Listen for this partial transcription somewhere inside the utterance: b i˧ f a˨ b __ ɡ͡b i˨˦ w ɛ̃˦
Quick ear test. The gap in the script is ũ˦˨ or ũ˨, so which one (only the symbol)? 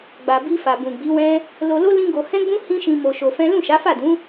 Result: ũ˨